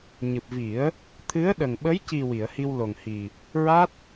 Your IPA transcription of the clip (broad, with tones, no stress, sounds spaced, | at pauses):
ɲ ɨ˨˩ p̚ v i˨˩˦ ə̯ | t̪ʰ ɨ˧˥ ə̯ ɗ ə˨˩ ŋ ɓ ə˧˥ j c i˨˩ w i˨˩˨ ə̯ h i˧ w l o˨˩ ŋ h i˨˩ | ɹ a˦˥ t̚